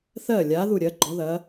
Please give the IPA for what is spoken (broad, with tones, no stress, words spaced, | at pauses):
θɜ˥˩lʲa˨˥ ðu˥˩ɾʲɜ˨˥ɡ͡ǃɔ˨˥ðɐ˨˥